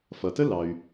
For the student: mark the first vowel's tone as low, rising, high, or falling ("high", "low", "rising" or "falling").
low